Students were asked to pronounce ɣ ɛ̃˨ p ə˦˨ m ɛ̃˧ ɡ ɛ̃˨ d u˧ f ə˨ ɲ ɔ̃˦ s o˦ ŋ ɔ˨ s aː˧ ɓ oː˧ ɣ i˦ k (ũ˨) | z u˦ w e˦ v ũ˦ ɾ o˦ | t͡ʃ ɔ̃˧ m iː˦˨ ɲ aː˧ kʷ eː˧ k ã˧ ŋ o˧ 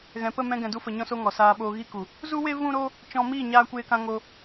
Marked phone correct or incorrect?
incorrect: u˨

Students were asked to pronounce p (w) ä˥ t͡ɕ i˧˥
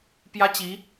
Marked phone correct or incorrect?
incorrect: j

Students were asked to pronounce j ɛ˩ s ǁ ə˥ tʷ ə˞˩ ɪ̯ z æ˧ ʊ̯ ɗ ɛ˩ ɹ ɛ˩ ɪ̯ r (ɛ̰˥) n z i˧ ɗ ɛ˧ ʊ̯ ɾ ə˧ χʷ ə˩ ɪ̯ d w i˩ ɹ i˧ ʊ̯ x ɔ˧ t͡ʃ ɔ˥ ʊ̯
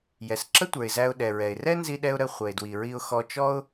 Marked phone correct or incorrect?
incorrect: ɛ˥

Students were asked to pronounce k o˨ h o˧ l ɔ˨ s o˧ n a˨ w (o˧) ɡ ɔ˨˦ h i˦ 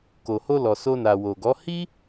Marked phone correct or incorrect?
incorrect: o˨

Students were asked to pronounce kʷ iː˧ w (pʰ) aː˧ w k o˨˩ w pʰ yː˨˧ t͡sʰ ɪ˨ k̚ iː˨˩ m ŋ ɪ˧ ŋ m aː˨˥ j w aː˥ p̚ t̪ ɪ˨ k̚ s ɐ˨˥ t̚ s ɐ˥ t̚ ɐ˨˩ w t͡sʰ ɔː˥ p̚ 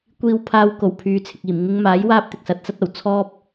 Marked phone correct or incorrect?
correct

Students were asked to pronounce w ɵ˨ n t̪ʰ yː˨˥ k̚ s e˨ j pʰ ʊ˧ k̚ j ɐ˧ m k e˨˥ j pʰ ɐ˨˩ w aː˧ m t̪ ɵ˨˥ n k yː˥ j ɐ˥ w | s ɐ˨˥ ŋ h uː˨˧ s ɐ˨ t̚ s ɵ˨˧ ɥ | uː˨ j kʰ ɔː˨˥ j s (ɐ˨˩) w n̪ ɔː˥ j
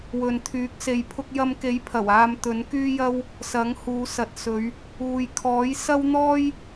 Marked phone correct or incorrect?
incorrect: ɐ˥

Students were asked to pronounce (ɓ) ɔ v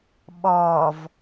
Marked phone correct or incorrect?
correct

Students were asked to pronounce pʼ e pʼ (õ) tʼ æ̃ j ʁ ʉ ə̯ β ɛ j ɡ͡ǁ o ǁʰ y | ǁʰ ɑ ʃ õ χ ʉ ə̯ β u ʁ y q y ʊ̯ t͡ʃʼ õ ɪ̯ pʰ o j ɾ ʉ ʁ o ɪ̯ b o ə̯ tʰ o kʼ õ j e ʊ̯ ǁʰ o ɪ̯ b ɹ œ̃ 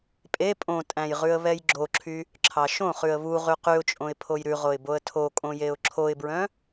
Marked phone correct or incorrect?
correct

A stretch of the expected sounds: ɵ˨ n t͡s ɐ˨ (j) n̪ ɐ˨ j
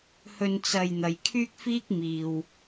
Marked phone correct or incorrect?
correct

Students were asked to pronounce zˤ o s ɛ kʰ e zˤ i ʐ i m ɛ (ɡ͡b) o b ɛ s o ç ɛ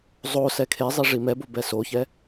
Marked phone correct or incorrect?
incorrect: b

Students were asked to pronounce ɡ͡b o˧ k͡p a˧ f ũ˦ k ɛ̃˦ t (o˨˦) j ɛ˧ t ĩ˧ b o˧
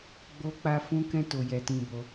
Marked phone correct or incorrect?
incorrect: o˧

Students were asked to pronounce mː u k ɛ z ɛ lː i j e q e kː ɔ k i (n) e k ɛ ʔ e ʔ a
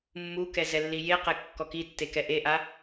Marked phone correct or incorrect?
incorrect: tː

